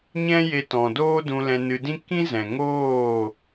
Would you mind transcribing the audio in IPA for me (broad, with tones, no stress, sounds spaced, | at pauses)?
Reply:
ɲ ɛ̃˦ j e˧ t ɔ̃˨ d oː˦ d ũ˧ l ɛ̃˧ n ɨ˧ d ĩ˦ k ĩ˦ z ɛ̃˨ ŋ oː˦˨